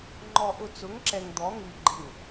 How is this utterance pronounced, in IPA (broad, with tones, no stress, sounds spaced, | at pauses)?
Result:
ŋ͡ǃ ɔ˨ ʔ ʊ˨ t͡s ʊ˨˦ ŋ ǁ ɛ˨ ŋ d̪ ɔ˨˦ ŋ i˨ ɡ͡ǃ ɪ˨ ŋ